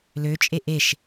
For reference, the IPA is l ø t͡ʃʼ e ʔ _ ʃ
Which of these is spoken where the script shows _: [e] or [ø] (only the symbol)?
e